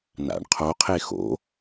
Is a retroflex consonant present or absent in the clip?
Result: present